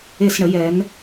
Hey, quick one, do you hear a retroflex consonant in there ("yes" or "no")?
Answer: yes